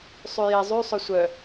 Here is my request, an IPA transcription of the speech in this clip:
sˤ y j e zˤ y sˤ ø sʷ œ

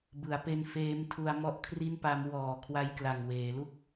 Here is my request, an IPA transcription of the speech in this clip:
b ɯ˩˦ a̯ p e˧ n f eː˦˥ m tʰ u˧ a̯ m ɔ˥˩ ʔ kʰ r i˥˩ n p a˦˥ m w ɔː˨˩ kʰ w a˧ j k l a˨˩ ŋ w eː˩˦ l u˥˩ k̚

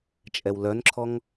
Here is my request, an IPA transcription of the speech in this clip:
t͡ʃʼ ɛ w l œ n ǁʰ ɔ ŋ

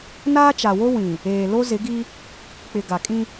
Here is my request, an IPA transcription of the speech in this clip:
n aː˦ t͡ʃ a˨ w o˦ w ĩ˨ | eː˨ l o˦ z ɪ˨˦ ɡ i˦ | k͡p ɪ˨ ɡ a˨ kʼ ĩ˦

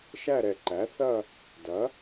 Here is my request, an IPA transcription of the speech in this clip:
ʃ æ˥˧ ɾ ɛ˧˩ ǃ æ˨˥ θ ɐ˥˧ | d ɐ˨˥

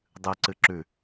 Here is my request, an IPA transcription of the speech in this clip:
dˤ ɨ ǀ ɨ ǁ ʉ

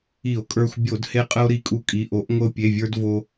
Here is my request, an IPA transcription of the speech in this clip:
i˧˩˧ o̯ kʼ ə˞˧ xʷ bʲ o˧˩˧ d h e˧ qʼ ə˧ o̯ ɾ i˧ kʼ u˧ kʼ i˩˧˩ ʔ o˨˥ ʔ ŋʷ ə˧ o̯ pʲ e˩˧˩ vʲ ə˞˧ d v o˧

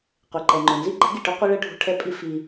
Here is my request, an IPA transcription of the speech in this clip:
qʷ e˨ ǃ ɛ˨ ŋ͡ǃ ʊ˨ n z i˦ ɡ͡ǃ ɛ̤˦ ɡ i˨ ʈ ʊ˦ qʷ i˦ ɭ ɛ˦ ɖʱ ṳ˦ ʈʰ ɛ˦ pʼ i˦ f i˦

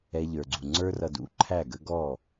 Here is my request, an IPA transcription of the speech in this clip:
ɛ˧ ʎ ə˞˨ ɡ͡ǀ u˨ ŋ͡ǀ ə˞˧ r ʌ˨ d ṵ˨˦ ǃʰ æ˦˨ ɡ ə˦ ɡ ɔ˦˨

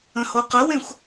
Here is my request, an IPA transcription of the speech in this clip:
ə̃ h o q ə w ẽ xʷ

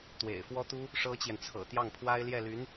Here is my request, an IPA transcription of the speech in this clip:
t̪ w ḛ˨˩ ɪ̯ f w ɔ˥ t̪ u˥ | ʂ ɤ˥ t͡ɕ j ɛ˨ n t͡sʰ ɤ̰˨˩ t̪ j ɑ˥˩ ŋ pʰ w a˥ ɪ̯ l j ɛ˥˩ l y˧˥ n

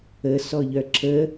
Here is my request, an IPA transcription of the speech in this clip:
ə s ɔ ʎ œ ǁ ə

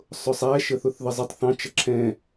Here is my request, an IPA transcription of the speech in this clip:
sˤ ʊ sˤ æ ʃ ə θ ʊ θ ð ə zˤ ɪ tˤ θ ɑ̃ t͡ʃ ʌ ǁʰ ɛ̃

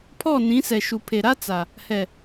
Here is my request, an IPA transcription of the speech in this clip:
pʰ ɔ˦˨ n ĩ˨˦ s ɛ˨ ʃ u˨ pʰ e˨ ɾ a˦ t͡s a˨ | h ɛ˨

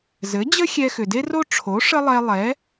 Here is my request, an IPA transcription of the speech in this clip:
z ɘ˩˥ d͡ʑ ə˥ xʲ ɛ˧ x ʏ˩ d e˥ r o˥ ʈ͡ʂʰ o˩˥ ʂ ə˥ lˠ ɛ˧ lˠ ɛ˩˥

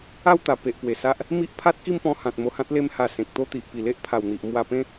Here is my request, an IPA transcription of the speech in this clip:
a˥˧ w t̪ a˨˩ p e˨ ʔ p w e˨˩ s a˦ ʔ | m i˦ ʔ pʰ a˦ t̚ k i˥˧ m p ɔ̃˧ h ã˨ t̚ m o˧ h ã˦ t̚ l e˧ m h a˨˩ s ẽ˨ k̚ t̪ o˥˧ t̪ i˨ ʔ p i˨˩ l e˦ ʔ pʰ a˨˩ w n̪ i˨ ʔ m w a˧ p ẽ˦

